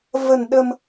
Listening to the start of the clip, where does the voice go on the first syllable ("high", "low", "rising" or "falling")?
low